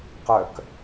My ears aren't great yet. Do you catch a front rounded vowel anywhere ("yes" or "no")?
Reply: yes